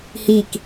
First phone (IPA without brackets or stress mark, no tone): h